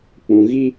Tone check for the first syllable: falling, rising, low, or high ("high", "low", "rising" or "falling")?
low